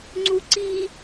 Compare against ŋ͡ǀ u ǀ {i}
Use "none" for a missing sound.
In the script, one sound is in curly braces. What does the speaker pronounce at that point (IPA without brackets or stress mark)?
i